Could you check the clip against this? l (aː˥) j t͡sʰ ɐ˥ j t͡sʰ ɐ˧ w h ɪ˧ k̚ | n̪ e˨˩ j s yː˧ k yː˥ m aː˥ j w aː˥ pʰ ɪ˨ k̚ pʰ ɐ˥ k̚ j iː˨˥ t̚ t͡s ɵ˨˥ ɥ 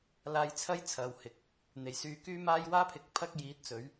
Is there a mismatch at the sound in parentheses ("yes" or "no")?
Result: yes